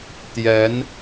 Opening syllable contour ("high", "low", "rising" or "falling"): rising